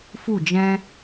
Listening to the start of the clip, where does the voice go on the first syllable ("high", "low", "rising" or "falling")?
falling